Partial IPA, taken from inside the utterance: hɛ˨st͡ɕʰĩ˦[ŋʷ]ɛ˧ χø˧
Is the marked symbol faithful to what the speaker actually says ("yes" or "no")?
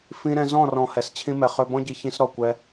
no